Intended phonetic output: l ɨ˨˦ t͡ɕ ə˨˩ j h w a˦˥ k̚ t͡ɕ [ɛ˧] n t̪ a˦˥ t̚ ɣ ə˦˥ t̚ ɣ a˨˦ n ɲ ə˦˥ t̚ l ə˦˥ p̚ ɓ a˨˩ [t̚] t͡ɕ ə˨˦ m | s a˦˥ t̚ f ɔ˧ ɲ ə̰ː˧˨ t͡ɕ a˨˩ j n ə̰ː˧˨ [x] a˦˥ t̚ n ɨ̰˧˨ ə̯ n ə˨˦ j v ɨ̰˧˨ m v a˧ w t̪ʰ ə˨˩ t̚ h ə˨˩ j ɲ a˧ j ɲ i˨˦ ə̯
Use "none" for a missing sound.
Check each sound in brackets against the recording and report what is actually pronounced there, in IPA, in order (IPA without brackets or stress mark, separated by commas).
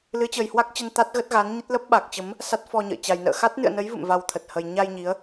ə˧, k̚, x